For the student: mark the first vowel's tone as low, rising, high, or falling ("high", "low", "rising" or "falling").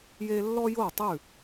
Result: high